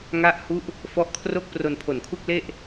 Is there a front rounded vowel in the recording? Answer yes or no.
no